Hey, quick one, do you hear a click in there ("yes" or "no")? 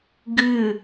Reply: no